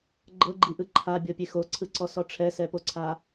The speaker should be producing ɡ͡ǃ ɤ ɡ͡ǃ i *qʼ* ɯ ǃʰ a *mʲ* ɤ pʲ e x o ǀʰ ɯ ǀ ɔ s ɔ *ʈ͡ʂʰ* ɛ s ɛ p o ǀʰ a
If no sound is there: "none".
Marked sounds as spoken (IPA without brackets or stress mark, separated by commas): ʔ, bʲ, ʈ͡ʂʰ